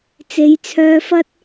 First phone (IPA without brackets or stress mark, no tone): t͡s